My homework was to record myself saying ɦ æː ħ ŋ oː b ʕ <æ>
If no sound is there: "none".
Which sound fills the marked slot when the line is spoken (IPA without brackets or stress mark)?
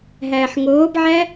æ